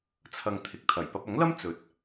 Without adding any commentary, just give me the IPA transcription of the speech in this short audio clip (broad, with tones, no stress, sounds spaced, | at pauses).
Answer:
t͡sʰ ɐ˧ ŋ t̪ʰ ɪ˨ k̚ t̪ʰ ɐ˨˩ j p ɐ˧ p̚ ɐ˨˥ ŋ l ɐ˥ m t͡s ɵ˨˥ t̚